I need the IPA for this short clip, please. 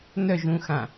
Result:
n œ ʒ ũ x ã

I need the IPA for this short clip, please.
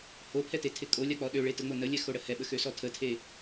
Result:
h o pʰ ɛ t e tʰ ɪ kʼ o lʲ a k͡p ɔ ɗ ø ɭ e t ə ŋ͡m o n ə lʲ ɛ x o ɽ ə h ɛ ɓ ə x ø s ɔ tʰ ə tʰ e

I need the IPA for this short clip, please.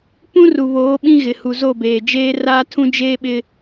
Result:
p ũ˦ r u˨ β oː˨˦ ɓ ĩ˦ ɣ ɪ˨ h u˨ z o˦˨ b eː˨ d͡ʒ eː˦ r aː˦ tʰ ũ˦ d͡ʒ eː˦ ɓ ɪ˦

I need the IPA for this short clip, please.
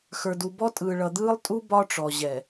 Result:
x ə˞˨ d u˨ b ɔ˦ tʼ ɯː˨ ɭ ʌ˨ d̪ ɯː˦ lˠ tʼ u˦ b ɒ˦ ʈ͡ʂ ɔ˨ ʑ ɛ˨

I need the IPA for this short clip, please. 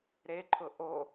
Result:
ɾ e ǃʰ ʊ ʔ o

